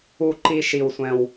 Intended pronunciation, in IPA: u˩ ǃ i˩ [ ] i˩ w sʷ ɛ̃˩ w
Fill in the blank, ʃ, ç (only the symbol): ʃ